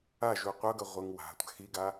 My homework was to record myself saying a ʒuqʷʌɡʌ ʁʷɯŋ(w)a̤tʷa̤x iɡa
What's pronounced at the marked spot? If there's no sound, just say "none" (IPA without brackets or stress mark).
w